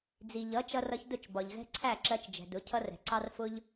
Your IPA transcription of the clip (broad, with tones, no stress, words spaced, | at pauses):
d͡zi˨ʎʌ˨˦ t͡ʃʌ˧rʌ˧çdʊ˦˨t͡ʃbɒ˨ʎ ɣɛ̤˦ǀʰæ˦˨ǁɜ˧t͡ʃd͡ʒɛ̤˨ dʊ˨˦ cʰʌ˦rɛ̤˨ ǀɑ˦rfʊ˦ʎ